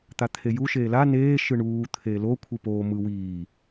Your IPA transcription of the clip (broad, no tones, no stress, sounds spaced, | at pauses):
t̪ a t̪ʰ e j u ʃ eː l a n eː ʃ ɯ ɳ uː t̪ʰ eː l o kʷʰ ɯ p oː m ɯ w iː